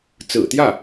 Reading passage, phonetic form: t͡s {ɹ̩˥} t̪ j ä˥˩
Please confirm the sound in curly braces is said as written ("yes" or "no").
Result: no